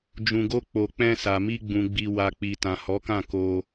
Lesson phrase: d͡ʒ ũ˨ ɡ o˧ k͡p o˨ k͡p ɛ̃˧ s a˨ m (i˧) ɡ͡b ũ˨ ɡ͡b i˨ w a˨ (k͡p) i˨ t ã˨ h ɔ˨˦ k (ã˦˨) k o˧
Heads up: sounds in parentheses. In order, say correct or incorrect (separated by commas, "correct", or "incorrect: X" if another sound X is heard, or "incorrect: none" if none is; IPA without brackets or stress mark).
correct, correct, correct